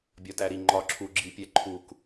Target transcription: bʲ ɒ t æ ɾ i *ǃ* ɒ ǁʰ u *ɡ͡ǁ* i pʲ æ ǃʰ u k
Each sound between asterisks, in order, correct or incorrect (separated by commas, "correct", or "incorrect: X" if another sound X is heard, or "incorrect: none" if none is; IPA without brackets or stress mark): incorrect: ŋ͡ǃ, correct